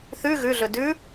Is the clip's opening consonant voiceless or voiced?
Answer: voiceless